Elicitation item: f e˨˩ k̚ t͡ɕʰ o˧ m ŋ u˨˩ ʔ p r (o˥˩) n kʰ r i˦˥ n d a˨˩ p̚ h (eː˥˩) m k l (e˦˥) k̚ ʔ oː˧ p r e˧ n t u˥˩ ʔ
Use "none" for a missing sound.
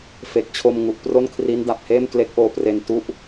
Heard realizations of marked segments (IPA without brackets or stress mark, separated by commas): o˥˩, eː˥˩, e˦˥